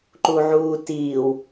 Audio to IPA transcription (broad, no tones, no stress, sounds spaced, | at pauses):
ǃ u ʕ uː t iː w